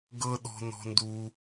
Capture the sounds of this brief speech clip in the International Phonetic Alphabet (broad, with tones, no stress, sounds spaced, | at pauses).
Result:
ɡ ɤ˦ ɗ ɔ̤˦ n ɔ̤˦ n d u˦